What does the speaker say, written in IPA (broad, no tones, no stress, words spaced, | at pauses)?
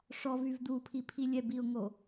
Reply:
ʂɔvyv d̪upʰipʰi lʲɛ biʊ̯ŋo